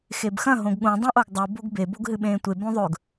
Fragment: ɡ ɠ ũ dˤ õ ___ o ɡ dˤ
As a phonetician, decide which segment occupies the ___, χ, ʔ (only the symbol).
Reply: ʔ